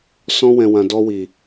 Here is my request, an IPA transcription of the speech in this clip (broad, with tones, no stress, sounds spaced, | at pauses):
s ɔ̃˧ w ɛ̃˨ w ã˨ d ɔ˧ w i˨